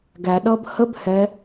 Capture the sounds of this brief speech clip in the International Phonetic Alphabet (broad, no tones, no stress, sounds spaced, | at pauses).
ɡ æ ɗ ʌː b h ə b h ɛ